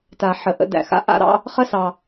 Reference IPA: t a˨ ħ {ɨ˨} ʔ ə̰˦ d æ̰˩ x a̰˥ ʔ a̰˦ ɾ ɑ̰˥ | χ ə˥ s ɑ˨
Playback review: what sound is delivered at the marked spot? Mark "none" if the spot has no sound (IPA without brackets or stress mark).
ə˨